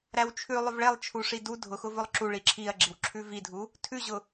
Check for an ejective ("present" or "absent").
absent